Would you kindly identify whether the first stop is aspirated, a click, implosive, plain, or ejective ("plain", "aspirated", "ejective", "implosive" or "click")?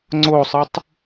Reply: click